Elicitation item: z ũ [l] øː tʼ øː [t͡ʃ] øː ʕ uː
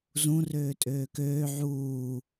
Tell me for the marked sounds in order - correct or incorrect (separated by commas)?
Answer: incorrect, incorrect